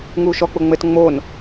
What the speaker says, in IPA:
ŋuːʃɔ k͡pʊŋ͡mɘt ŋ͡mon

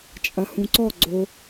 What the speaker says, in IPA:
t͡ʃʼɐhũǀɔ ɡ͡ǀo

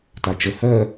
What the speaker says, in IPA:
tat͡ʃə hɜ

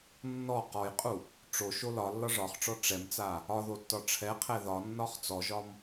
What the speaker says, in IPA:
nːɔ qɔjqʼu | ʈ͡ʂo ʃolɒlːɒ ʐɒχʈ͡ʂɔ ʈ͡ʂɛmt͡sa | ɒðo tːɒʈ͡ʂʰɛqʰɛ ðɒnːɒχ t͡sɔʒɒm

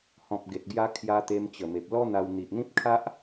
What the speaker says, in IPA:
hɔ̃˨p̚ ɡe˨t̚ɡja˧ kʰja˦ t̪e˧mt͡ɕə˨˩me˨p̚ lɔ˦n̪a˧w n̪i˨ʔn̪ĩ˦p̚kʰa˦ʔ

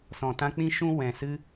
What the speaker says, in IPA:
sɔ̃˨tã˧ k͡pĩ˦ʃũ˦ wɛ̃˨sɨ˧

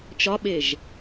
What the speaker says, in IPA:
t͡ʃɒɓeʒ

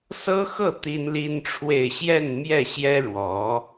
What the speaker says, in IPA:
sɤ˥xɤ˥˩ t̪i˥nli˥nʈ͡ʂʰwe˥˧ɪ̯ ɕjɛ˥˧nmjɛ˥˩ɕjɛ˥ ɻwɔ˧˥

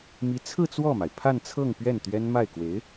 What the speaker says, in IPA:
mi˧˥t͡sʰɹ̩˥˧ t͡swɔ˥˩ma˩ɪ̯ pʰa˥˧nt͡sʰɤ˥˧ŋ pɥɛ˥˩nt̪ɥɛ˥n ma˥˩ɪ̯ kwe˧˥ɪ̯

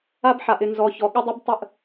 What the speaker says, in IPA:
a˦bħa˨ʔɪ˨ nzɔ˨çɔ˨ ɠə˦dˤə˦b tˤə˦˨ʔ

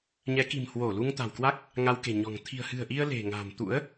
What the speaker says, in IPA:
ɲɛ˨˦ki̤˨˩m hwo˧˩lu˧ŋt̪a̤˨˩wkwa˦˥k̚ | ŋa˧wke̤˨˩ɲɔ̤˨˩ŋ t̪ʰi̤˨˩ə̯hɨ̤˨˩ə̯ʔi˧ə̯ le̤˨˩ŋa̤˨˩m t̪ṵ˧˥ə̯

